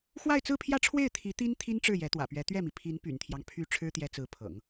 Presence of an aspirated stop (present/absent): present